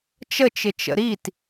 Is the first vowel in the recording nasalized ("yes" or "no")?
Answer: no